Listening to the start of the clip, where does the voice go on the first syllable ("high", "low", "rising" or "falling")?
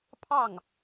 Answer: falling